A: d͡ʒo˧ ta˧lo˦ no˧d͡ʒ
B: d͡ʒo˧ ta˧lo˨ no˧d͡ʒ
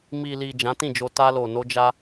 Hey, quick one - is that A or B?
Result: B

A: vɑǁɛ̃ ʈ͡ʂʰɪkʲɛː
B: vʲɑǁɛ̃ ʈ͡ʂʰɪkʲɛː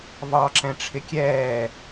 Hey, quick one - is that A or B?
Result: A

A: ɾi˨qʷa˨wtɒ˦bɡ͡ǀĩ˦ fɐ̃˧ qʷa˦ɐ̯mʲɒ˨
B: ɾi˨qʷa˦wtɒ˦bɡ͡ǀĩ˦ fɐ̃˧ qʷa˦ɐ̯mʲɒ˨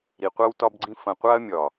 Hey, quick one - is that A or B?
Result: B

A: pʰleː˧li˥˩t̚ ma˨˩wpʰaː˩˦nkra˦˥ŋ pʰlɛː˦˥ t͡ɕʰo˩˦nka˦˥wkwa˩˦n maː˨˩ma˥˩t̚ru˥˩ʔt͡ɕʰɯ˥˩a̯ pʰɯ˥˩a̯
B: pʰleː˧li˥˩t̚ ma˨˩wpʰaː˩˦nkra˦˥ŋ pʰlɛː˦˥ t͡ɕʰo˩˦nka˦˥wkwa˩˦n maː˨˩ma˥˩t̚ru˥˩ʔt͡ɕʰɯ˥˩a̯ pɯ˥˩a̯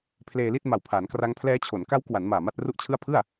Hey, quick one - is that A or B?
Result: A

